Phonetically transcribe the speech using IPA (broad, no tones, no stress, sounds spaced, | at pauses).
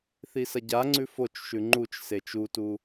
θ i s ɐ ɟ a ŋ͡ǀ ʉ f o t͡ʃ ʃ ʉ ŋ͡ǃ u t͡ʃ s e t͡ʃ u t u